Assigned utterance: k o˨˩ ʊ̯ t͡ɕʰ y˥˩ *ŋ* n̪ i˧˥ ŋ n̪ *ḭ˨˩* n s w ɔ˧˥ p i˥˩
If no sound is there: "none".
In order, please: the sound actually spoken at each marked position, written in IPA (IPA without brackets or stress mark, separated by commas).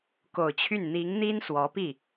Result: n, i˥